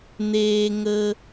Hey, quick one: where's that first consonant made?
tongue tip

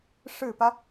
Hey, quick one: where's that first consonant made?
retroflex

